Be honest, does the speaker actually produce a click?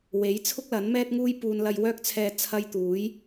no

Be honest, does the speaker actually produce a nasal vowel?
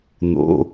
no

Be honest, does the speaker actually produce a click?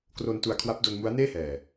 no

